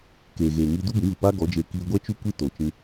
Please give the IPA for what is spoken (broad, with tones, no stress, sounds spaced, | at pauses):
k eː˨ ɣ eː˨ ŋ iː˧ d u˦ b ĩ˨˦ v ɨ˨ p aː˦ ɡ ɔ˨˦ d͡ʒ e˧ k iː˧ ɡʷ ɛ˦ t͡ʃ u˦ kʷ i˦ t o˨ t͡ʃ ĩ˧